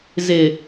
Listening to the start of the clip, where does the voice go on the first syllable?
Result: low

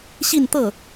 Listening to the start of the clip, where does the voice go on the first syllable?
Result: falling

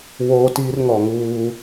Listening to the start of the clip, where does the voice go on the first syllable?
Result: high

